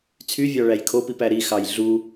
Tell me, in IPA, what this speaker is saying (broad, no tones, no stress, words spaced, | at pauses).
t͡sʰyvʲɑɭæj kʰopipæ ɾixɑj ɮu